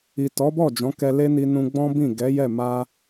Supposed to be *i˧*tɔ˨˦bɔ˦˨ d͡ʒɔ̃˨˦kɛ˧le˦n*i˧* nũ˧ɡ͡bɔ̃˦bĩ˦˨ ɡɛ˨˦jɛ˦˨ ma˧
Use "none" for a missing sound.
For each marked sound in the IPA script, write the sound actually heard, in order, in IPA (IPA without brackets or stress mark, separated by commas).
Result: i˨, i˧